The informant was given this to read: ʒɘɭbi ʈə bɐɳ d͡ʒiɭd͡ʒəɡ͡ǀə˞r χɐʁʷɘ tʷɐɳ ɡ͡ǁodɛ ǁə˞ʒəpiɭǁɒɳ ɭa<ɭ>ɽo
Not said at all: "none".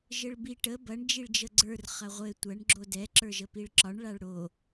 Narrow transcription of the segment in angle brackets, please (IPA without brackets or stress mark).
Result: ɭ